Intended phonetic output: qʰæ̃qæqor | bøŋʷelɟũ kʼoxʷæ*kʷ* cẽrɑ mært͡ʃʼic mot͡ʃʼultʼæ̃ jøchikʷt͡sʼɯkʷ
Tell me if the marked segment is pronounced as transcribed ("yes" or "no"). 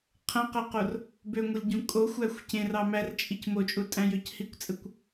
no